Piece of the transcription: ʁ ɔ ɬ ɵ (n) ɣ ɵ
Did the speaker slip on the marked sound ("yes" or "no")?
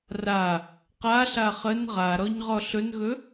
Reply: no